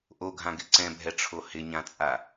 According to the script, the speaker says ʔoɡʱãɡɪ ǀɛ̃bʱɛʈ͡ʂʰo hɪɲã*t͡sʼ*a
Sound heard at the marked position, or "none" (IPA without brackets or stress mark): t͡sʼ